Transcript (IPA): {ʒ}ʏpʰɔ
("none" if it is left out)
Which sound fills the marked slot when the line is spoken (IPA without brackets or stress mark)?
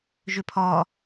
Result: ʒ